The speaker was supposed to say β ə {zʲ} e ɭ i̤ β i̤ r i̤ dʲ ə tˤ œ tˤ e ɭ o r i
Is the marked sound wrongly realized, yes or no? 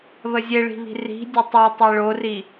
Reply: no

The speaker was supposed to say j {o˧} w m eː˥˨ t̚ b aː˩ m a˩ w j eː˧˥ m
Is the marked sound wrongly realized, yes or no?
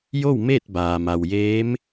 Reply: yes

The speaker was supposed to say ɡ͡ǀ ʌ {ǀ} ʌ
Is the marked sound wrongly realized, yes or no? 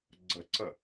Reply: no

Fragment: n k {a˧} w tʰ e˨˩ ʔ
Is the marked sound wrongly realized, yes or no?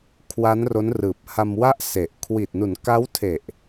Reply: yes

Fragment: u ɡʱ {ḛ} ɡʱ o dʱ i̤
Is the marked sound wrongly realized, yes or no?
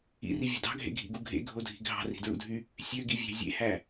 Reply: no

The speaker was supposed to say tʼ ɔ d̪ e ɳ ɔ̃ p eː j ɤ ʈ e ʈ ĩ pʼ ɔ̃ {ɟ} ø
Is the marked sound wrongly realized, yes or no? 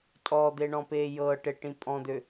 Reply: yes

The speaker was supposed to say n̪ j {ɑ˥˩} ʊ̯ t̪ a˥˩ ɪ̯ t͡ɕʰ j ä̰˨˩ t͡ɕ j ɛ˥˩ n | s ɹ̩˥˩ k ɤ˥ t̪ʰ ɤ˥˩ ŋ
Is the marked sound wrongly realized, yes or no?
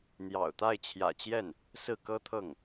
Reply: yes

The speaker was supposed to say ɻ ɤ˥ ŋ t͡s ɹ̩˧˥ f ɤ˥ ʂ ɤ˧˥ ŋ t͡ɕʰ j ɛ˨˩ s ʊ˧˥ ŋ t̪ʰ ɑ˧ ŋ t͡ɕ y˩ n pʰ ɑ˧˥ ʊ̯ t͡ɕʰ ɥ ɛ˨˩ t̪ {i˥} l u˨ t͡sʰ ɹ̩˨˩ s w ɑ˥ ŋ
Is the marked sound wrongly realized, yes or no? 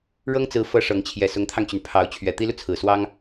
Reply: no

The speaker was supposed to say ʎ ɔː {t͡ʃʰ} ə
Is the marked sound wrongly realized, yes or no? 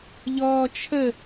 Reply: no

